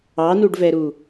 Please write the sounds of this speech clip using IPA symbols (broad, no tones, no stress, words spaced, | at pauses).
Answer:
ɑnuɖvɛɾu